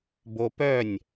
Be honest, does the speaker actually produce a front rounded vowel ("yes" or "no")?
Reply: yes